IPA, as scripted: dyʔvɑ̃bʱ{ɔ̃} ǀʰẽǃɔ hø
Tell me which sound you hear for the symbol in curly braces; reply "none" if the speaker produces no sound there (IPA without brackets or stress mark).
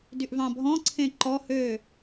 ɔ̃